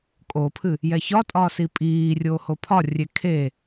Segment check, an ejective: present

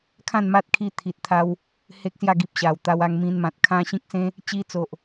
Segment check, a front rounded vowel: absent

